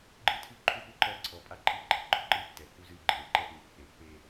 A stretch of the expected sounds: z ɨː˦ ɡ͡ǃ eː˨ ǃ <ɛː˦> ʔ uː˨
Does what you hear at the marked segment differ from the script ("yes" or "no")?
yes